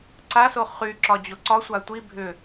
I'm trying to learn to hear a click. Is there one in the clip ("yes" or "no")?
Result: yes